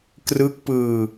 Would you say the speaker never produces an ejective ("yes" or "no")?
yes